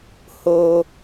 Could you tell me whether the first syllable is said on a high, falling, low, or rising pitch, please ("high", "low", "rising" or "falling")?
high